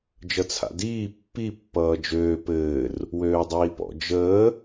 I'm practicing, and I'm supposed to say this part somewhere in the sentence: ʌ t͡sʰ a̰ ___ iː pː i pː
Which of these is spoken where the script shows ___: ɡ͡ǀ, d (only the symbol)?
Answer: d